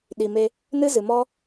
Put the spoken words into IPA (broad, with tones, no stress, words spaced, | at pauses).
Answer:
ɗi˨ me˧ | nɨ˦zɨ˨ mɔ˦